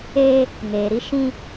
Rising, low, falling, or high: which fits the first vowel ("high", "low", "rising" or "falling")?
high